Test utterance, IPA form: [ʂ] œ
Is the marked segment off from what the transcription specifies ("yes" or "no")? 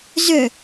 yes